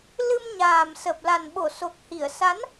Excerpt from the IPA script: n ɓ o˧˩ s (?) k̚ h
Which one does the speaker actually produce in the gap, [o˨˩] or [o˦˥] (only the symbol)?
o˨˩